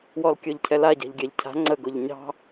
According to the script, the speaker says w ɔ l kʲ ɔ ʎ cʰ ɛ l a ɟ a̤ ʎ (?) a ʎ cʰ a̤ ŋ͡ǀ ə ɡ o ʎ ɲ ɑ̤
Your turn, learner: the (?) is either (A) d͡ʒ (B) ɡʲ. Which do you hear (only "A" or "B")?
B